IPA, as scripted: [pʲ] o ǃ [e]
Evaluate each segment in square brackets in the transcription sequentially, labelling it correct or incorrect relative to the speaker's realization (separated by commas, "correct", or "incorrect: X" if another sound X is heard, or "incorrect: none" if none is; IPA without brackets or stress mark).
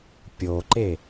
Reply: correct, correct